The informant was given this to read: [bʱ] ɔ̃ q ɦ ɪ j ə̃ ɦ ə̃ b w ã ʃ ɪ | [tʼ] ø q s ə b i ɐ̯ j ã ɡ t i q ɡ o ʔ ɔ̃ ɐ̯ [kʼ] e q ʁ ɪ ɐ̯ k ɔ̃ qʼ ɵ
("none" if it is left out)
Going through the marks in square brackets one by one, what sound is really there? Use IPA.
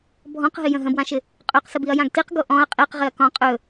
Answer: bʱ, qʼ, qʼ

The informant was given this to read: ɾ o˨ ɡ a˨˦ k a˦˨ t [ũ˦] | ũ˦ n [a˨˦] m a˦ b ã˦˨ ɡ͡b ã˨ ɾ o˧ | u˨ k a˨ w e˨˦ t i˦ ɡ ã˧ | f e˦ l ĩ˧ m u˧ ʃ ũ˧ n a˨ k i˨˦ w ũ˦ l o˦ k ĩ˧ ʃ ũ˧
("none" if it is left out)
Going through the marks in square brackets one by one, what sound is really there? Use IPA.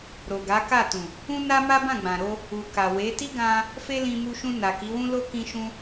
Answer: ũ˨, a˦

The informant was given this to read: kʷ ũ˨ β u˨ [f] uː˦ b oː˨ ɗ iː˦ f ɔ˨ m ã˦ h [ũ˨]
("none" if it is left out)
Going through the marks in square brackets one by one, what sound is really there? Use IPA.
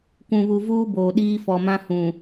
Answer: v, ũ˨

